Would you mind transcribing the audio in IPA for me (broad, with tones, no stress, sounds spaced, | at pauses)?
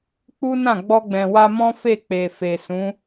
k͡p u˦ n ã˦˨ ɡ͡b ɔ˧ ɡ͡b ɛ̃˨ w a˧ m ɔ̃˦ f e˦˨ k͡p e˨ f e˨ s ũ˨˦